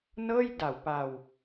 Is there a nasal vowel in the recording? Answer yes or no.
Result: no